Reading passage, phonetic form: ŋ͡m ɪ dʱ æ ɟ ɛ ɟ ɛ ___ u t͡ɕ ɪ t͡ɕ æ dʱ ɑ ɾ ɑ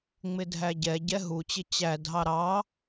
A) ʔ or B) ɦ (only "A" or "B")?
B